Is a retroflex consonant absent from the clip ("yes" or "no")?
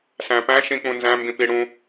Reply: no